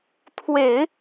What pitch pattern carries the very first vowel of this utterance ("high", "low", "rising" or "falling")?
low